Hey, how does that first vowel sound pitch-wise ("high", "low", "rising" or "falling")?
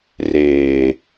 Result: low